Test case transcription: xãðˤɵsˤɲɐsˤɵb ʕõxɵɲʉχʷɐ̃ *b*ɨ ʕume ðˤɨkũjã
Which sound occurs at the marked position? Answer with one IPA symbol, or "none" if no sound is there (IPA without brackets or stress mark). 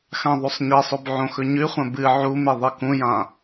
b